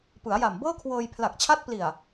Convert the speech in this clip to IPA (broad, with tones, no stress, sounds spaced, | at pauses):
p ɯ˩˦ a̯ j a˨˩ m b ɤː˥˩ kʰ w ɤː˧ j pʰ l a˨˩ k̚ t͡ɕʰ a˦˥ t̚ p l i˨˩ a̯